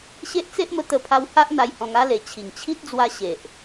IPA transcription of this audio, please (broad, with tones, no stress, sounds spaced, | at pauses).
ɕ e˦ ʔ t͡s e˦ ʔ m ə˧ t̪ ə˥˧ pʰ a˦ w h a˦ ʔ n̪ a˧ j h ɔ̃˧ ŋ a˦ l e˨˩ t͡ɕʰ i˨˩ ŋ t͡ɕʰ i˦ t̚ d͡z w a˧ ɕ e˨ ʔ